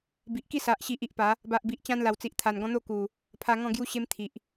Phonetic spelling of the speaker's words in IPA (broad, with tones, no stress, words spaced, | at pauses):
bi˨ʔki˥˧sa˨ʔ ɕi˨ʔi˨ʔ pa˨˦ | ba˨ʔbi˨ʔ t͡ɕã˦nla˨˩wt͡si˨ʔ t̪ʰa˨˩nɡɔ̃˦ n̪o˥˧ku˨˩ | pʰa˧ŋɔ̃˥˧ɡju˦ɕe˦m t̪ʰi˨ʔ